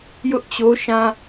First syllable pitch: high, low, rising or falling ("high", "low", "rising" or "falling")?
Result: high